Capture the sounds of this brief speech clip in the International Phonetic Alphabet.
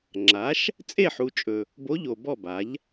ŋ͡ǁa˩˥ʃ | t͡sʼe˦˨ħu˨t͡ʃʼɵ˨ | bo˧˥ʎo˨bɔ˦˨ ba˩˥ʎ

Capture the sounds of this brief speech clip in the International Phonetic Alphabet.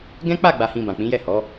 ɡɛ̃˦k͡pa˦˨ɡ͡ba˨hĩ˨ bã˨k͡pĩ˨˦jɛ˦˨ hɔ˨˦

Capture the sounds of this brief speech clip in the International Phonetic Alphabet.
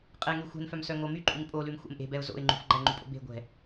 qʼɛŋy xʷɛ̤nfœmsœ ŋomy ǃʼyŋpʼolʉm xʷɛ̰mʔe̤bɛʊ̯ zo̰ɪ̯ŋ͡ǃṳf ɡ͡ǃæŋ͡ǃypʼo̰ be̤ ɡʷɛ̤

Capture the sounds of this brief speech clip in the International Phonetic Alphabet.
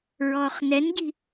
ɹɔːχnɛnɟi̤

